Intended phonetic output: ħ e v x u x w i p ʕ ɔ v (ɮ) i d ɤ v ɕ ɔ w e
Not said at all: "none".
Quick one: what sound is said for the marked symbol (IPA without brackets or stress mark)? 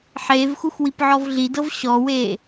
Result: ɮ